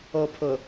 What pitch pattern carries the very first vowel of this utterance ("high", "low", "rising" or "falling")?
low